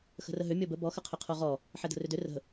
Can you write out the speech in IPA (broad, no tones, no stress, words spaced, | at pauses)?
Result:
xə̤rəɦʏ mʲɔbə bɔxəqʰʏ qʰoʁɔ | ħɛdə̤rʏdʏ rə̤